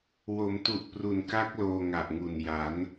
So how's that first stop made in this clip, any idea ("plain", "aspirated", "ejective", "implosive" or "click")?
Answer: plain